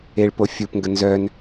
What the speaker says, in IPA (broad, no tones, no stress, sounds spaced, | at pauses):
e ɭ p o fʲ u p ŋ ɡ ə n z œ n